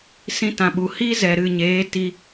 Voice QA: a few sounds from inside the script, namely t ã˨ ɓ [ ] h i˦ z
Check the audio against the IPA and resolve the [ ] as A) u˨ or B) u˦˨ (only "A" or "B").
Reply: A